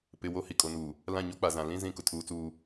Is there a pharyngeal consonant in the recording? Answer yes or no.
no